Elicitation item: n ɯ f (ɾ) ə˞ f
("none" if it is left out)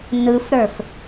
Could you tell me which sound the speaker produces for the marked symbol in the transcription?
ɾ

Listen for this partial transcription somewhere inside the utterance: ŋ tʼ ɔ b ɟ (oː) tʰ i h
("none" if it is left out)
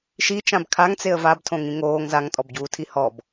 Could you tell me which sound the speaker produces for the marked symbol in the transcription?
uː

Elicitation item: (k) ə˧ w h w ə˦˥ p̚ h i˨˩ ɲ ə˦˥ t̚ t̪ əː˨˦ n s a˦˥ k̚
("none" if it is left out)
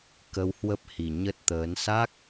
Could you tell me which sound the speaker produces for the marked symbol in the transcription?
k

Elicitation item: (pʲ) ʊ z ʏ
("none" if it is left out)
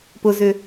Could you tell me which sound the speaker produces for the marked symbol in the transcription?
p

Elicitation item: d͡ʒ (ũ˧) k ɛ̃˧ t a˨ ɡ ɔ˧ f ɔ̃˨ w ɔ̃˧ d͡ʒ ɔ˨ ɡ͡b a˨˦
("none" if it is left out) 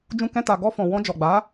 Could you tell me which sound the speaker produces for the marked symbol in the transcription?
ũ˧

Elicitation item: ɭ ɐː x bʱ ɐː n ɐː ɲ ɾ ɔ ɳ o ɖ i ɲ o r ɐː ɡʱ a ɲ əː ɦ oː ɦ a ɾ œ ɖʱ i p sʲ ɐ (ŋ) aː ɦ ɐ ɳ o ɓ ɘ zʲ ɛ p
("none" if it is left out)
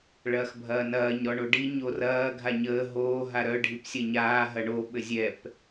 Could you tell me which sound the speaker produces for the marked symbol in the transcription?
ɲ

